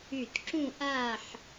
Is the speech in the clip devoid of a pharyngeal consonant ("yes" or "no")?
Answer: no